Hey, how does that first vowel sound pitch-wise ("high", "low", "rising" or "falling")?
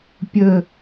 falling